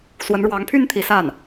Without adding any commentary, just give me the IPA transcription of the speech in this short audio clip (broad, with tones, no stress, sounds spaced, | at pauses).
s w ə˧˥ n ɻ w ɑ˧˥ ŋ pʰ y˥ n t̪ʰ i˧˥ s a˥˩ n